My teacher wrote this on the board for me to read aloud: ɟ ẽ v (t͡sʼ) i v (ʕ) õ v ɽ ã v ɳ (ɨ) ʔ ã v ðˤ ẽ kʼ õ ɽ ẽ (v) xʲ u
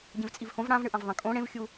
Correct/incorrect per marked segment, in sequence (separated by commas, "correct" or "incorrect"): correct, incorrect, correct, correct